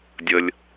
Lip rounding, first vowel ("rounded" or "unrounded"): unrounded